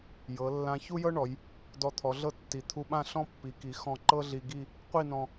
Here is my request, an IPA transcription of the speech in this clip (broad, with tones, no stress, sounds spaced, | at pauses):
j ɤ˩˧ lː ã˧ ç u˥ j ɤ˥ ɳ ɔ˩˧ j | d ɔ˧ t̪ʰ ɔ˩˧ ɮ ɤ˥˧ tː i˩˧ t̪ʰ u˧ ɓ ã˥˧ ɬ ɔ̃˥ pː i˩˧ k i˩˧ x ɔ̃˧˩ ǃ ɤ˥ ɮ i˧ ɡ i˥˧ | qʷ i˥˧ n ɔ̃˧